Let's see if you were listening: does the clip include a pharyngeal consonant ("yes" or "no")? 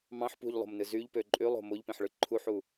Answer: yes